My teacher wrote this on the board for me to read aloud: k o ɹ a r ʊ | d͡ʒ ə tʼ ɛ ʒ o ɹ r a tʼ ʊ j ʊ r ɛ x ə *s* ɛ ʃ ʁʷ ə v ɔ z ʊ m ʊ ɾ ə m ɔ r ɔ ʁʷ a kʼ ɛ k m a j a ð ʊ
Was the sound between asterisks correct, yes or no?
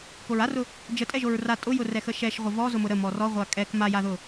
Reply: no